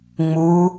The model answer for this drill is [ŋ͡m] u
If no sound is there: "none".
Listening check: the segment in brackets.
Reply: ŋ͡m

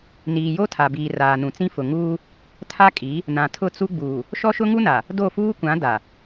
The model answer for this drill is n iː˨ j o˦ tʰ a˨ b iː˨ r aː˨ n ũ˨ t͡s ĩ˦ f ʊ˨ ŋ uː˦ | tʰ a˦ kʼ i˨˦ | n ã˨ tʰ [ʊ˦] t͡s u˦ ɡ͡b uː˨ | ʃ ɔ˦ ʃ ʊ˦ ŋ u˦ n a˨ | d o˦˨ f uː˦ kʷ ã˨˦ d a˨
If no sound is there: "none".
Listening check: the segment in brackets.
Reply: ʊ˦˨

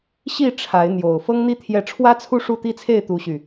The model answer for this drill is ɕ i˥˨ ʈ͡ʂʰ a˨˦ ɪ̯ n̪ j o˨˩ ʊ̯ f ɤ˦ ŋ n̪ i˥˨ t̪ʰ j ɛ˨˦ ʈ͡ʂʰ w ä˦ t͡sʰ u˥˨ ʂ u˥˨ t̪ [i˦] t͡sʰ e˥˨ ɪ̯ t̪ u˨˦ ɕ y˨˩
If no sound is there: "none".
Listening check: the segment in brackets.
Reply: i˦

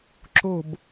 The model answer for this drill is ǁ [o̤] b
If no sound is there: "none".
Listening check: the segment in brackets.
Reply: o̤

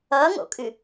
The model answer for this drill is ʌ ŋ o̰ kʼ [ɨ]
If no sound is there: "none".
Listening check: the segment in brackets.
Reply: ɨ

